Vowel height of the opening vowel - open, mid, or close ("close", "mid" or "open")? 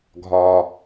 open